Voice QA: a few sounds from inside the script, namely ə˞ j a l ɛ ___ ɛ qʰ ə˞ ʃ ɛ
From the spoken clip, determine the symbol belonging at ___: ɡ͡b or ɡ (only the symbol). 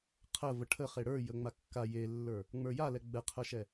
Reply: ɡ͡b